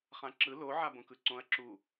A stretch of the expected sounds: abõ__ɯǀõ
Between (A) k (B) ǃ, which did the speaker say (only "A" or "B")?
A